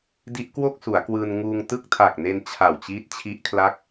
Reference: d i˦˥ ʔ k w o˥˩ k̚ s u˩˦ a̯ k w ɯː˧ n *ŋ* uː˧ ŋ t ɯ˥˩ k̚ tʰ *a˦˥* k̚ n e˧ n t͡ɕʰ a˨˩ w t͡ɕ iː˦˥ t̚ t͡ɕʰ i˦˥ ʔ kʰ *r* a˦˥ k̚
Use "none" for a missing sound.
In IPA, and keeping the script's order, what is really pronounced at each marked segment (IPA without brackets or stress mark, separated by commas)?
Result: ŋ, a˨˩, l